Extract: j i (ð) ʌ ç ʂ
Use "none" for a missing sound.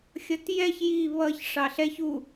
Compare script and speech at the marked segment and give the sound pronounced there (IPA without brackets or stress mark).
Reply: β